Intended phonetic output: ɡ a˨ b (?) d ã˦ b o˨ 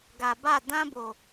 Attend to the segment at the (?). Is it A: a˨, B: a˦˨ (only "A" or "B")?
B